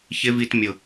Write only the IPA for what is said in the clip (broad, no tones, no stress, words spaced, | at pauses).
çɪ vitmʲʊ